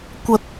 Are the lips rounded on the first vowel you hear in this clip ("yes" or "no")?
no